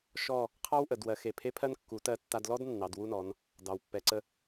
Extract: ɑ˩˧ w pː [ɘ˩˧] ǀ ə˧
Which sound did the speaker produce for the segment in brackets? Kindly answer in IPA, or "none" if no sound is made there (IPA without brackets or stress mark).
ɛ˩˧